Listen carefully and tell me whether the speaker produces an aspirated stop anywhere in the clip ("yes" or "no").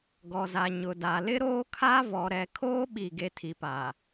yes